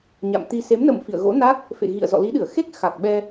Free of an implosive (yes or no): no